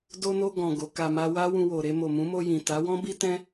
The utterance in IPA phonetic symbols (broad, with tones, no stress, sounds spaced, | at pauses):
d o˧ n o˧ ɡ ɔ̃˨ ɡ o˨˦ k a˧ m a˦ w a˦ w ũ˧ w o˨ ɾ e˧ m o˨ m ũ˨˦ m o˧ j ĩ˨ t a˨˦ w ɔ̃˦ b i˦ t ɛ̃˦